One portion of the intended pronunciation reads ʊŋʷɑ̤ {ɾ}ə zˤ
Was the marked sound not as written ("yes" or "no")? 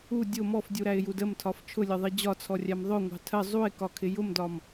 yes